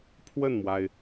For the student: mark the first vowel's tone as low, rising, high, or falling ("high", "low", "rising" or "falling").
falling